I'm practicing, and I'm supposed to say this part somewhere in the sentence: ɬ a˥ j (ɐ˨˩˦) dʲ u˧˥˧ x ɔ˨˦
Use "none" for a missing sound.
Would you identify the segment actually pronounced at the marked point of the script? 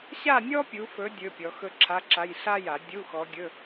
a˨˩˦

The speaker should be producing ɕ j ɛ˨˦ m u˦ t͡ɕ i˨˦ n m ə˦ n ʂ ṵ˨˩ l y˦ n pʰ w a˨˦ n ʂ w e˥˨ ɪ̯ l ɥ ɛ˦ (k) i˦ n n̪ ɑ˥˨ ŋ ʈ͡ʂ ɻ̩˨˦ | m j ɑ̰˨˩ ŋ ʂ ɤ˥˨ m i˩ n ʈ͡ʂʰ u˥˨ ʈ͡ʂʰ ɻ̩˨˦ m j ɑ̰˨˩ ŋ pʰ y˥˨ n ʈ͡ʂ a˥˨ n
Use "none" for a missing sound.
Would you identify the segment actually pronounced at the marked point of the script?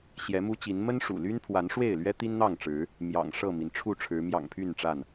t̪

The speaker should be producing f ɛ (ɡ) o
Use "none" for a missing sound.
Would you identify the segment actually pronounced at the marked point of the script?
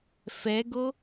ɡ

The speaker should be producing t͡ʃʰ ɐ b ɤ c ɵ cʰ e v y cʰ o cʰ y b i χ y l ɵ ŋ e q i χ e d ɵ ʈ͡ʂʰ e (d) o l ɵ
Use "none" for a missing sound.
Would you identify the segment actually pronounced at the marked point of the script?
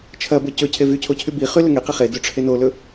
n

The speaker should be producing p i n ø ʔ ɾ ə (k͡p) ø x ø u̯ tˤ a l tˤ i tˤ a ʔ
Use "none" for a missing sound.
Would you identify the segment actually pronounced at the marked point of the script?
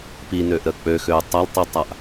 k͡p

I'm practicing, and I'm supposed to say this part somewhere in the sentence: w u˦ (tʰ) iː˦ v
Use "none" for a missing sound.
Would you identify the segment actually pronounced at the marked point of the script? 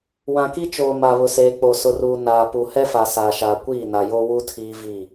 tʰ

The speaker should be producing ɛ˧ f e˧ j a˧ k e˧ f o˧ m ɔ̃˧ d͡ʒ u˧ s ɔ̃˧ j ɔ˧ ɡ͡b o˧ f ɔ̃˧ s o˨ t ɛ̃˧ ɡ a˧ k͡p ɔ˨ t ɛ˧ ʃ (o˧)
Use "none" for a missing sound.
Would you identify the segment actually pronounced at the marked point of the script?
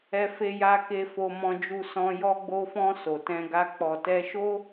o˦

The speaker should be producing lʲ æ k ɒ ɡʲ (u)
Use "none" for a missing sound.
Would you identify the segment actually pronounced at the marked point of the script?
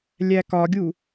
u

